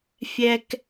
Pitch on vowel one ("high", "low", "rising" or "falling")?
high